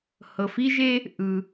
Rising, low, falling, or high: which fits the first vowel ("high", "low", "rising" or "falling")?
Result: low